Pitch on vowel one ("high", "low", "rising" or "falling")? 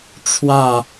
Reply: falling